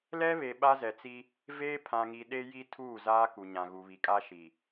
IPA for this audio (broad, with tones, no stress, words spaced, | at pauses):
lɛ˦βe˨ ɓa˦zɛ˨t͡si˦ | veː˦pʰã˨ŋi˨ɗe˦ ji˦ tʰuː˦˨ zaː˦ku˨ ɲã˨ɣu˨βi˨kʼa˦ ʃi˨